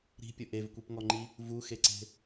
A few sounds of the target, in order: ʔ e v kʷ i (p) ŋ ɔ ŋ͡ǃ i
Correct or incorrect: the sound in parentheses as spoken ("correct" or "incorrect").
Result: correct